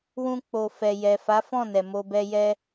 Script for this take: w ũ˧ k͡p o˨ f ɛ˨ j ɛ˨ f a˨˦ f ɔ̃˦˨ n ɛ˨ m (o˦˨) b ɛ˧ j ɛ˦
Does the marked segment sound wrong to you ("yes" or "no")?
yes